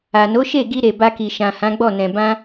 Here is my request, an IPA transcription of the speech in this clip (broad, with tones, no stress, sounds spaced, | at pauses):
a˨ n o˨˦ ʃ e˦˨ ɡ i˧ ɾ e˨ b a˧ k i˨ ʃ ã˨ h ã˨˦ ɡ͡b ɔ˦˨ n ɛ̃˨ b ã˧